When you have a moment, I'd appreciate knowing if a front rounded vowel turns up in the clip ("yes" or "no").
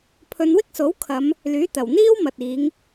yes